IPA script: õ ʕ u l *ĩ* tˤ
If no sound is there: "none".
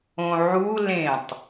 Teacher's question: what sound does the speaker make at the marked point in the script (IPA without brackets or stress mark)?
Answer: ẽ